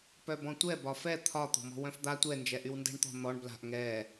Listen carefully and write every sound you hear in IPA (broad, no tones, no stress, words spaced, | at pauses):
pœbɔ̃tʷɛ bɒfɛ t̪ʰɒ t̪ɔ̤mɔ̤wœ̃fd̪a tʷɛ nd͡ʒɛʔywndɛ̤ɳt̪ɔ̤ n̪ɔɳ bla̤ʔ ŋɛ